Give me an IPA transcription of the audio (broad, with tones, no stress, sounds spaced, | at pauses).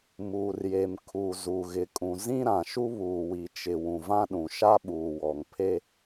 m uː˨ r j e˨ m kʰ u˨ z u˨ ɣ ɪ˨ kʼ ũ˨ z ĩ˦ ɾ ã˨ ʃ u˦ β uː˨ w i˨ t͡ʃ ɪ˨ w ũ˨ v ã˦ ɗ ũ˨ ʃ a˦ ɓ uː˨ w ɔ˨ ŋ pʰ e˦